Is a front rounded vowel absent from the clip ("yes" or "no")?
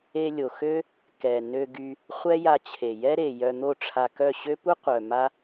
no